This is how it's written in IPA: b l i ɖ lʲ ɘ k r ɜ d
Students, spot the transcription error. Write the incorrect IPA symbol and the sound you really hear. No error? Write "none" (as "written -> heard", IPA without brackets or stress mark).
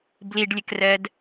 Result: none